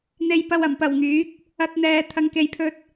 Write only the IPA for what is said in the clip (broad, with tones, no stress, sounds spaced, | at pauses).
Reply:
n̪ e˨ j p ɐ˨ w ɐ˨˩ m p ɐ˨˩ w ŋ yː˨˥ k̚ | ɐ˧ t̚ n̪ ɛː˨ t̪ʰ ɐ˨ ŋ k e˨ j pʰ ɵ˧ t̚